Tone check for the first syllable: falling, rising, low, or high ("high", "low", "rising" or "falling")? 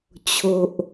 low